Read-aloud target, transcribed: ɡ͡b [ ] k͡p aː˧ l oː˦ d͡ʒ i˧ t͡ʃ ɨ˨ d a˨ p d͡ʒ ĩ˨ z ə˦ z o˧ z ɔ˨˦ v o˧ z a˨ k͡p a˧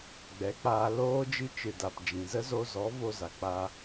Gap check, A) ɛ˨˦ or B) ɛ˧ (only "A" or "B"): A